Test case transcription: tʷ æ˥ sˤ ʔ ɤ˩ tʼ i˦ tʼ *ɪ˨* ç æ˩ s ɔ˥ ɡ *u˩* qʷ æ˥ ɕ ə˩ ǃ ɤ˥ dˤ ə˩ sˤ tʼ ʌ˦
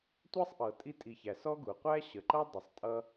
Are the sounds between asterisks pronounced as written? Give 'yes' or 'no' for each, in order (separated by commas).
no, yes